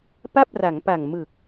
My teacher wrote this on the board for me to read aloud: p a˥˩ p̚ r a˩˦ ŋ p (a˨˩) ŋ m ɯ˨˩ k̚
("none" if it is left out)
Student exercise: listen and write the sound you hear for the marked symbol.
a˨˩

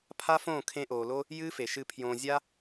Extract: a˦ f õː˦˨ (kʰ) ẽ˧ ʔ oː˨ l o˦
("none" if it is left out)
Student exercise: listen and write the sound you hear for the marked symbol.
kʰ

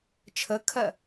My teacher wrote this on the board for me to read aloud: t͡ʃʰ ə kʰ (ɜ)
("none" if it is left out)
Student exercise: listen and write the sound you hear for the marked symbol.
ɜ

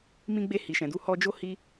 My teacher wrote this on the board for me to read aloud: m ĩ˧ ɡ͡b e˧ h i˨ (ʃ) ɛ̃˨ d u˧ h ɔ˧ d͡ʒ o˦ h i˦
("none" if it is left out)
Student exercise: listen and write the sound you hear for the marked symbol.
ʃ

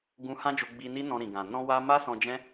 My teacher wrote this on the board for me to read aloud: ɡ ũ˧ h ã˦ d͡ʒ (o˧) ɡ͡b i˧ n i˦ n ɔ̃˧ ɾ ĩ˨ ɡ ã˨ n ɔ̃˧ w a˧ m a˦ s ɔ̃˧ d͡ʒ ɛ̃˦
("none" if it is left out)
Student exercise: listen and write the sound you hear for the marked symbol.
o˧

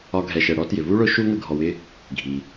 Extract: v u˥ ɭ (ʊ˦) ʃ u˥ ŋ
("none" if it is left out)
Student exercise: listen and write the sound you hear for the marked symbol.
ʊ˦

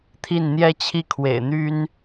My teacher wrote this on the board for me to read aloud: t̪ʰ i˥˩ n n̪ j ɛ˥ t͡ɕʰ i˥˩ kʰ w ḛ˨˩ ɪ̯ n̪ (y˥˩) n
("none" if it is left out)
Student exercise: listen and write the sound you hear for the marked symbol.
y˥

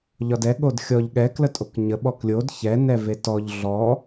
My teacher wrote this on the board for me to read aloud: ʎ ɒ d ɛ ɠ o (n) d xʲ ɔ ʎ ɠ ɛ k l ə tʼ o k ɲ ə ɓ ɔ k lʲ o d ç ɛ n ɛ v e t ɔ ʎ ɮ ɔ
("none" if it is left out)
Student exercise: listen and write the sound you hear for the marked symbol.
none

